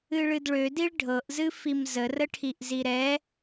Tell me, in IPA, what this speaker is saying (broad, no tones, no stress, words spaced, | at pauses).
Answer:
ɨɭɨdɭødiɭ ɖʱɤʔzɨfim zərəʈʰiʔ ziɾɛ